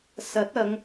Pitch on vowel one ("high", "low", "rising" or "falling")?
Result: rising